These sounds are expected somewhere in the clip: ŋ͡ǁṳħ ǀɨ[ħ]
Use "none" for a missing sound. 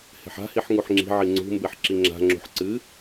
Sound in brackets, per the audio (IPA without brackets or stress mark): none